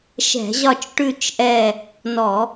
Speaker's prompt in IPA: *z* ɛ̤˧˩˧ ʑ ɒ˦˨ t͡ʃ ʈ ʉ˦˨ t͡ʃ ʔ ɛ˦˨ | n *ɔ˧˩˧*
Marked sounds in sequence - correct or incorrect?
incorrect, correct

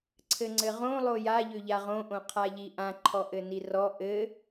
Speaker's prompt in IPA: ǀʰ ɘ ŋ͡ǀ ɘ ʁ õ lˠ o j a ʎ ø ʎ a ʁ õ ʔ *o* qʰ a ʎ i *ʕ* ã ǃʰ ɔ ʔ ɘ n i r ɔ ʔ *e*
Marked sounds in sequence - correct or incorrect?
incorrect, incorrect, incorrect

